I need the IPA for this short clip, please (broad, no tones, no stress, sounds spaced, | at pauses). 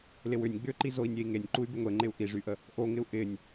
l ɪ w ʏ nʲ ɡ͡b ʏ ǃ i z o i̯ nʲ e i̯ ŋ e nʲ ǃ u y̯ b ɪ ŋʷ e ŋ͡ǃ ɪ u̯ ʔ i ʐ y ʔ ə | ʔ o ŋ ɪ u̯ ʔ ɪ nʲ